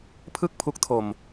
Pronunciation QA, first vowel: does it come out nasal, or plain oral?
oral